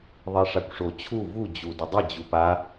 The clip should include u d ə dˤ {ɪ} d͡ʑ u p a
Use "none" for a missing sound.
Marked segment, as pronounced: ɪ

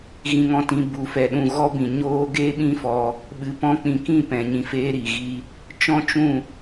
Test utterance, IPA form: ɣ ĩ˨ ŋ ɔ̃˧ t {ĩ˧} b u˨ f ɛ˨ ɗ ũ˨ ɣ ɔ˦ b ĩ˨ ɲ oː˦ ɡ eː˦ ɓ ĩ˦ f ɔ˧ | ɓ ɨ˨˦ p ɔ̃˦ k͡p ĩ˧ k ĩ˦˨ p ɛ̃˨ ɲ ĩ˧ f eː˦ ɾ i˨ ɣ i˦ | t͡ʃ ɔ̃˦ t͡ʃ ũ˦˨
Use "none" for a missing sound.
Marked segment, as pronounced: ĩ˨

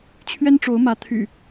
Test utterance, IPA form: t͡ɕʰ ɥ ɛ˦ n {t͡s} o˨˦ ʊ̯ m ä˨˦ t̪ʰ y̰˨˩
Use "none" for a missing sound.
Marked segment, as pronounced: ʈ͡ʂ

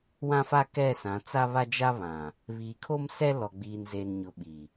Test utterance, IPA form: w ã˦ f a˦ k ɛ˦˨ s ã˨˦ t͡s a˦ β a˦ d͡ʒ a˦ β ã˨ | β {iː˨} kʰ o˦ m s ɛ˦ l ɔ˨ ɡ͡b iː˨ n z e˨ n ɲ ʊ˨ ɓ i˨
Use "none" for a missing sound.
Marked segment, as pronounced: iː˨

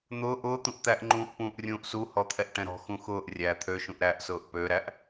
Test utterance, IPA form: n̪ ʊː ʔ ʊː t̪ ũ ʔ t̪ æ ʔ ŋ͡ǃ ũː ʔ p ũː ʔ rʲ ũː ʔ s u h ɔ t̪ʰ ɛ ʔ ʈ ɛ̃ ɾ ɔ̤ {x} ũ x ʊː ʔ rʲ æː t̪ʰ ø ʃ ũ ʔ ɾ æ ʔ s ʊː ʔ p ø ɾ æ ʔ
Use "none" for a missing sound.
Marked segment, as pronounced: x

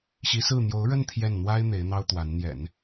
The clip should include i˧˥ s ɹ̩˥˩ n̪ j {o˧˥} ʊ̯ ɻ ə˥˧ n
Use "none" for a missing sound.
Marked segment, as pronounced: o˧˥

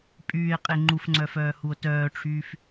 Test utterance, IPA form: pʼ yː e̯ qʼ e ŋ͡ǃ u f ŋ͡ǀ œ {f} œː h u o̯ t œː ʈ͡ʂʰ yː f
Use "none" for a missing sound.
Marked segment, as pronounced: f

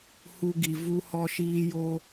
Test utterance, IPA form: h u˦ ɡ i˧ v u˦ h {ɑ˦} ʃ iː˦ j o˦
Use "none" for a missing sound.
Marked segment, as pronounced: ɔ˦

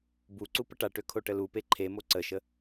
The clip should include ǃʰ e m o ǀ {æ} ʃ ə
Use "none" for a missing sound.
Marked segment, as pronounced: ə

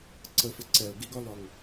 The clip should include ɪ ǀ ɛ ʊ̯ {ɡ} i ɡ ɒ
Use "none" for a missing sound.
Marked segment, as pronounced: ɡ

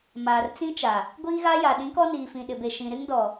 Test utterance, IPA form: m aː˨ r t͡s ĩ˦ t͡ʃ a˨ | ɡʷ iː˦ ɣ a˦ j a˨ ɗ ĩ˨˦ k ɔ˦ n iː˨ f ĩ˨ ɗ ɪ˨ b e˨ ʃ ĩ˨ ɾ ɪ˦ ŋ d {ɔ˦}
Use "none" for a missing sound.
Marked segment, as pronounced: ɔ˨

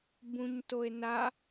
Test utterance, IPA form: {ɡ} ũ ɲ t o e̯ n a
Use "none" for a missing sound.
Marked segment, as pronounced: b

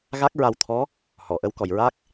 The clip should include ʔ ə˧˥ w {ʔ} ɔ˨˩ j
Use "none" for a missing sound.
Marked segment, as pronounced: k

